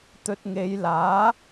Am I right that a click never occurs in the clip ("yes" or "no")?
yes